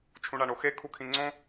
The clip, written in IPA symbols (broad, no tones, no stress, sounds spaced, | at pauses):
t͡ʃʰ ũ ɳ a ɳ o x e kʰ u kʰ ĩ ŋ͡ǀ õ